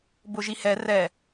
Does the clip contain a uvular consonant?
no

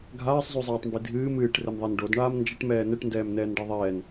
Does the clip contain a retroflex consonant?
yes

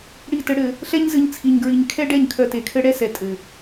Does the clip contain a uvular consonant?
no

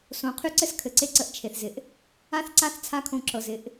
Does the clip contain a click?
yes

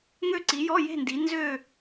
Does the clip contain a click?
yes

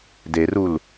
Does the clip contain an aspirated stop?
no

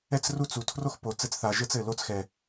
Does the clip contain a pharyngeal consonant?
no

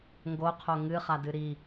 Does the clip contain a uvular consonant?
yes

